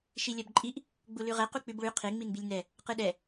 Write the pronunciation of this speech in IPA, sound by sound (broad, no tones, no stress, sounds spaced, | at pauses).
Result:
ʃ i lʲ ɜ b ǃʼ i ʔ | ɡ͡b u l ʉ ʁ ɛ q u k͡p ʉ b ɭ ʉ qʰ e ŋ͡m i n b i lʲ n ɛ | q ɯ ɗ ɛ